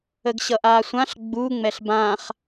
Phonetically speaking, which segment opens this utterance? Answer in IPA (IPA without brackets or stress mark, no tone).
ə